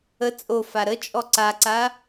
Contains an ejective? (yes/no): yes